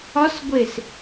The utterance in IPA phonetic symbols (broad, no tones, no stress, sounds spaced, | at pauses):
ɒ s ɡʷ e s